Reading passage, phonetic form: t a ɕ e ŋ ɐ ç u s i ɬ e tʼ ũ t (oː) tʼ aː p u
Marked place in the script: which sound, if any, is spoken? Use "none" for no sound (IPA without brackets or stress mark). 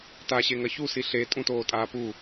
oː